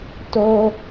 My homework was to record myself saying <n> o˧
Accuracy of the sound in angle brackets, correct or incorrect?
incorrect